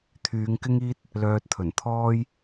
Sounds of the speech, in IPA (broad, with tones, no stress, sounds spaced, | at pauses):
t̪ʰ yː˨˧ ŋ k ɪ˥ ŋ iː˥ t̚ | l œː˧ t̚ t̪ʰ ɵ˨˩ n t̪ʰ ɔː˥ j